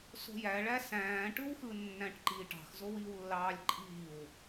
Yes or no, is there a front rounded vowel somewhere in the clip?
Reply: no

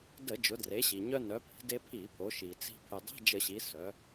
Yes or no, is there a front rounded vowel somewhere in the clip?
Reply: yes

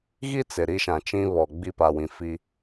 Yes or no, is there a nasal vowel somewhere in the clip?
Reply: yes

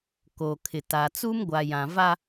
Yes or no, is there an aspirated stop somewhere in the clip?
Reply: yes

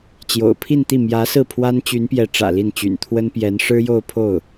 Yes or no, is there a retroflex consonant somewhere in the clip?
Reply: yes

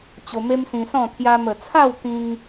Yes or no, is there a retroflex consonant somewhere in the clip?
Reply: no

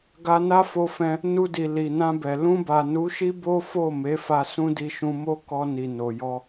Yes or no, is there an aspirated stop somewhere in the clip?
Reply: no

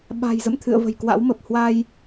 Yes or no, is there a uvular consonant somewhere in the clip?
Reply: no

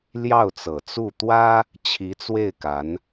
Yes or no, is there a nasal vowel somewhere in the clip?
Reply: no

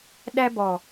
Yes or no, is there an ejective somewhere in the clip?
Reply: no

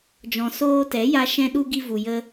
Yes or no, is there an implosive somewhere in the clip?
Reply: yes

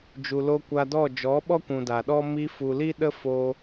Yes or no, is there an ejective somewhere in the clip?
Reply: no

